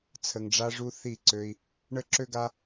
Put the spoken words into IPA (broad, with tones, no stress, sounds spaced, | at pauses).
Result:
t͡sʰ ə˨ ŋ ɖ͡ʐ a˧ ʐ u˧ θ i˦˨ ǀ ø˧ i̯ | ɳ ə˦ ǁ ø˦ ɡ a˦